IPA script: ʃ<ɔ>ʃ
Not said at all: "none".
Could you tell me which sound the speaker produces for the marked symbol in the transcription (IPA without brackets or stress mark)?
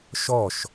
ɔ